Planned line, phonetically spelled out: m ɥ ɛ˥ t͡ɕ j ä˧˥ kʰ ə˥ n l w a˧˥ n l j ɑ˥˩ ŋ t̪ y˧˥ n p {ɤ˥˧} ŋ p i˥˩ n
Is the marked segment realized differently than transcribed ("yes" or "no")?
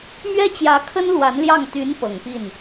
yes